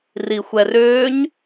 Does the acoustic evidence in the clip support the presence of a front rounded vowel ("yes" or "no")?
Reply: yes